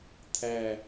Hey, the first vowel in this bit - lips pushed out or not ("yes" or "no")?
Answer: no